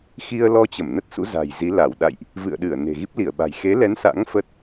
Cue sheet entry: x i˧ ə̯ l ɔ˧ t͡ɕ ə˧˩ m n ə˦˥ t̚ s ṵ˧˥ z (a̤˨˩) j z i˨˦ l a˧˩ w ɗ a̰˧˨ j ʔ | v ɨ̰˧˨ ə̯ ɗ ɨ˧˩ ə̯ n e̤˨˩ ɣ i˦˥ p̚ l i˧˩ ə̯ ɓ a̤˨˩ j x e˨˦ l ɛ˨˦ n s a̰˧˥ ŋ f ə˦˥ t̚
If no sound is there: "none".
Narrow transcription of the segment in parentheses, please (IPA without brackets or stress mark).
a̤˨˩